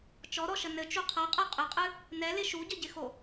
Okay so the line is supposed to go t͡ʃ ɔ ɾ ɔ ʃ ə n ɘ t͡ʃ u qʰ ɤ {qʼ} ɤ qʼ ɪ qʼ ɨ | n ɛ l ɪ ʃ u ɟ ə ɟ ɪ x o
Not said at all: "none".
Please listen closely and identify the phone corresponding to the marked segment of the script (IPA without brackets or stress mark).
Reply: qʼ